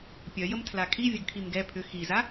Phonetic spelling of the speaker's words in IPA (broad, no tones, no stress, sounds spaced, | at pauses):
pʲ œ j ə m tʰ l a kʰ i vʲ ə ɡ kʰ i m ɡ ɛ pʰ ʏ x i z a